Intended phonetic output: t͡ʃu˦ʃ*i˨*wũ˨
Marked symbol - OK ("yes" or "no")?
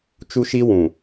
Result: no